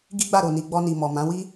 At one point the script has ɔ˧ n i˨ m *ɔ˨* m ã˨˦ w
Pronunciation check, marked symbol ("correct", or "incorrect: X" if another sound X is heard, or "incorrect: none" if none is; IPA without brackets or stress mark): correct